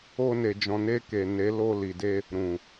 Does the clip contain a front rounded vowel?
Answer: no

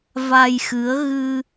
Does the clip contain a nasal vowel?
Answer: no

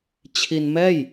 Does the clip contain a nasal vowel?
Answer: no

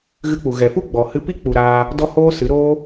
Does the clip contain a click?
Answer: no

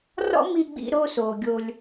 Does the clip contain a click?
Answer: no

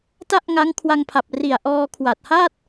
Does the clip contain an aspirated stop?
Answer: yes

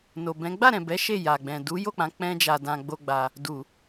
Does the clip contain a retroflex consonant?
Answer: no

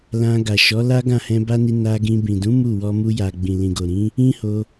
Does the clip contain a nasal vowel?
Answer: yes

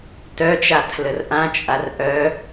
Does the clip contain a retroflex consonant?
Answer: no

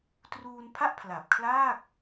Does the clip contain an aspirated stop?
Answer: yes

